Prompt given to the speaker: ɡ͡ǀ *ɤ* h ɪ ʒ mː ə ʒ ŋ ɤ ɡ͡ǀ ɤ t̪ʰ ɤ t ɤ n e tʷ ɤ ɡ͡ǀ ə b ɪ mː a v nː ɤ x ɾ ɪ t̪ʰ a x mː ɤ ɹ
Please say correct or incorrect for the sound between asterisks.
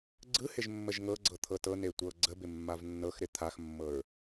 incorrect